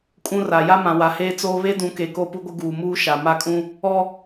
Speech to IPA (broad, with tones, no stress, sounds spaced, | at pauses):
kʼ ũ˦ r a˨ j a˦ m ã˨ w a˨ h eː˦ t͡s oː˦ β e˦ d ũ˨˦ k e˨ k o˦ p u˦ ɡʷ ɪ˦ ɡ uː˨ m uː˦ ʃ a˨ m a˦˨ kʼ ũ˦ | ɔ˦